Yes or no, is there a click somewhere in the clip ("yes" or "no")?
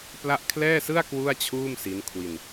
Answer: no